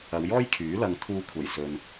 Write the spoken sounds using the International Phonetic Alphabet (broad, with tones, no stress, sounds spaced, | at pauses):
ɐ˨˧ w j ɔː˥ j kʰ yː˨˥ l ɐ˧ ŋ t̪ʰ uː˧ kʷʰ ɐ˨˩ j s ɵ˨ n